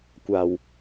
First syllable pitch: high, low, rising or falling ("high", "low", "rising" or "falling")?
low